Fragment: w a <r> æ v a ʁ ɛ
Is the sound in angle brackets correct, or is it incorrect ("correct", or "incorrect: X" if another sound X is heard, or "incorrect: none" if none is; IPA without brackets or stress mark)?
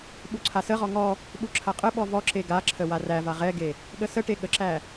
correct